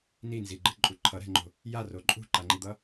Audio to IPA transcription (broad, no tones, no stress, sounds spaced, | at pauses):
n i n z i ɡ͡ǃ ɯ ǃʼ u ǃʰ ʌ ɾ ɛ̤ ŋ͡ǃ o̤ | j a r o ǃʼ ṳ ǃ a ŋ͡ǃ i d̪ ʌ